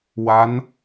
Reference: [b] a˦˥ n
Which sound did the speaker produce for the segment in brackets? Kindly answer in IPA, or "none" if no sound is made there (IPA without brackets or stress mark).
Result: w